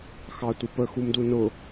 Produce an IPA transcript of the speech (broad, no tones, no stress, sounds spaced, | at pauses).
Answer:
x ɑ tʷ ə p ə x u m d u n ʊ